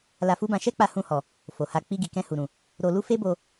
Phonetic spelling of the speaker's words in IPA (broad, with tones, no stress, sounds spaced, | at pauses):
l a˧ f u˦ b ã˧ ʃ ɛ˦ k͡p a˧ h ũ˧ h ɔ˨ | f o˨ h a˧ k͡p i˧ ɡ i˨ k ɛ̃˧ h u˨ ɾ ũ˨ | ɾ o˧ l u˦ f e˦ b o˧